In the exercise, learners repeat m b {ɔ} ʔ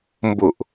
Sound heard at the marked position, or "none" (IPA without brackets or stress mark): ʊ